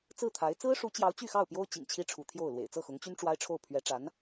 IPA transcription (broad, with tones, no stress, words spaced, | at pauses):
t͡sɹ̩˥˩t̪ʰa˧˥ɪ̯ t͡sɹ̩˥ʂu˧˥t͡ɕjɑ˧˥ʊ̯ t͡ɕy˥˧xɑ˥˩ʊ̯pjo˥ʊ̯ t͡ɕḭ˨˩ŋt͡ɕʰi˥ʈ͡ʂʰu˧˥ t̪ʰjo˥˩ʊ̯ lwḛ˨˩ɪ̯t͡sɤ˥˩xʊ˧˥ŋt͡ɕy˥n ʈ͡ʂwa˥ɪ̯ʈ͡ʂʰo˥˩ʊ̯ pʰɥɛ˧˥ʈ͡ʂa˧˥n